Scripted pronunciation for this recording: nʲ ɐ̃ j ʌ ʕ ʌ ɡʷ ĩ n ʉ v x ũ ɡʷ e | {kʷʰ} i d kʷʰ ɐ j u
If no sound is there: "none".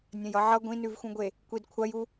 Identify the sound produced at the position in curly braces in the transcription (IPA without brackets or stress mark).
kʷ